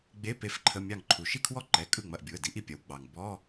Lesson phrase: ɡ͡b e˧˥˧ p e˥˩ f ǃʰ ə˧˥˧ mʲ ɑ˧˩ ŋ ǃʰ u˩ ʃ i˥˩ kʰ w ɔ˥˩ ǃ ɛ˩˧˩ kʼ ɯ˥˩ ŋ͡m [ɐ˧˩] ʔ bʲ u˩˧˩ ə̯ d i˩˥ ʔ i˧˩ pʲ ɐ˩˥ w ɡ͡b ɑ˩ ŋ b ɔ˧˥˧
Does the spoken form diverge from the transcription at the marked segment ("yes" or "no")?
no